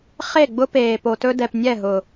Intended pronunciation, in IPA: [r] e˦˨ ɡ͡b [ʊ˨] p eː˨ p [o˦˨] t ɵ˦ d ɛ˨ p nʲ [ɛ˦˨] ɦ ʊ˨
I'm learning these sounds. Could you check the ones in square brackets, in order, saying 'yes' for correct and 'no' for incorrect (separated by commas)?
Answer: no, no, no, yes